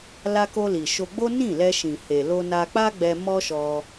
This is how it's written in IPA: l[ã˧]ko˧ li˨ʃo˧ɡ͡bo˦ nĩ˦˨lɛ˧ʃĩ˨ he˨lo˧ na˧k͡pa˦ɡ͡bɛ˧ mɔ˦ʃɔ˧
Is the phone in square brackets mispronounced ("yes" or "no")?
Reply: yes